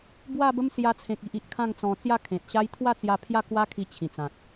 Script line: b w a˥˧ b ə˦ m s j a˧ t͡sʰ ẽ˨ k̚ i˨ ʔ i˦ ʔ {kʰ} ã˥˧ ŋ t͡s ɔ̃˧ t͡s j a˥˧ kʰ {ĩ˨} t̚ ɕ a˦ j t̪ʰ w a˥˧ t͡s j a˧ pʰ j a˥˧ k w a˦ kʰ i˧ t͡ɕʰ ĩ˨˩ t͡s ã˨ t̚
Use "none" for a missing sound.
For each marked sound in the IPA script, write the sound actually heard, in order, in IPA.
kʰ, ẽ˨

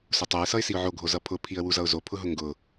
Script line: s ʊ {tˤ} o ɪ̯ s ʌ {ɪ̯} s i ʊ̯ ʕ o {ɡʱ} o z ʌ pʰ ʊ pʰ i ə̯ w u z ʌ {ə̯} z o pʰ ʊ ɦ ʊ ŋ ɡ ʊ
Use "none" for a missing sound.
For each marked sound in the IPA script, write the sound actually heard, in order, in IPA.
tˤ, ɪ̯, ɡʱ, ʊ̯

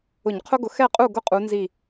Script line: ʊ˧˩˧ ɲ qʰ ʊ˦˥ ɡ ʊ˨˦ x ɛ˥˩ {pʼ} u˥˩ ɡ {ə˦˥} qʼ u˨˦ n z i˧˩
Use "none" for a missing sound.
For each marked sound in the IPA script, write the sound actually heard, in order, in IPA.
qʼ, ʊ˦˥

